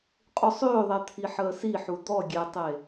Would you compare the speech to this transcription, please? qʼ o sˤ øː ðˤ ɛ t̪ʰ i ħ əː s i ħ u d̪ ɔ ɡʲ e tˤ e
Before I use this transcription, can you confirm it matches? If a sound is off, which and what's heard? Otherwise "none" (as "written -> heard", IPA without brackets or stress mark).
none